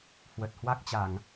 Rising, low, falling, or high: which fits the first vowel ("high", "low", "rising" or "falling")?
low